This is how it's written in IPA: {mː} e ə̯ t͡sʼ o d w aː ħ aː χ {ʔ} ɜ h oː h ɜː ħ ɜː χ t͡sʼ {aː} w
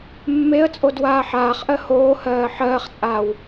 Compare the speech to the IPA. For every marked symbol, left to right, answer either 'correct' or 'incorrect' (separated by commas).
correct, correct, correct